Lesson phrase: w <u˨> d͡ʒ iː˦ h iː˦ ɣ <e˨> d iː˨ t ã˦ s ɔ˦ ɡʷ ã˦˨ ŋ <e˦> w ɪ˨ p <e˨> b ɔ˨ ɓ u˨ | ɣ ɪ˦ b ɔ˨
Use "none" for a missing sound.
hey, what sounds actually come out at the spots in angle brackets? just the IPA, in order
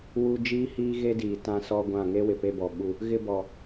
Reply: u˦, e˦, e˦, e˦

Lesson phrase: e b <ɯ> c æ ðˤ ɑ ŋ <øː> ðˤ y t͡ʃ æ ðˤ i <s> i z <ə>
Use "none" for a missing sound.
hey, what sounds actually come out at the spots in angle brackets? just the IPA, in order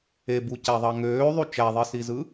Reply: u, øː, s, ɯ

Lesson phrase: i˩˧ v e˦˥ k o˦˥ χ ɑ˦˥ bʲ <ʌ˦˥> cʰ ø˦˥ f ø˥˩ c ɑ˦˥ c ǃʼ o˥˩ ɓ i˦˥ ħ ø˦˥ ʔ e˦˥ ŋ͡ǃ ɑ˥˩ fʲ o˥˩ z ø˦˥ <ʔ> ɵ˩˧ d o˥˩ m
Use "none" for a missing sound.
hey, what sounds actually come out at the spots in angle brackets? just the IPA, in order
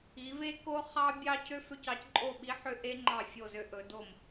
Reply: ɑ˦˥, ʔ

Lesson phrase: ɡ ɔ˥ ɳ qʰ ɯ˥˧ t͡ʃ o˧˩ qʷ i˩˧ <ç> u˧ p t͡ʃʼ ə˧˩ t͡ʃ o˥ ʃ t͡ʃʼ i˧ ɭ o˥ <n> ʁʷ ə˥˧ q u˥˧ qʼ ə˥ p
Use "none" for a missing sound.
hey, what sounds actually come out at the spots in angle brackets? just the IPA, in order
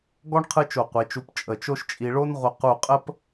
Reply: t͡ʃ, n

